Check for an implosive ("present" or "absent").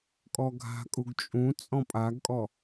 absent